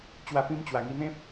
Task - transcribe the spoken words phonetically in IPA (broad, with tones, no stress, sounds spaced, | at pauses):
t͡ɕ w a˧ p ĩ˧ m t͡ɕ w a˨˩ ŋ i˧ n̪ ẽ˦ p̚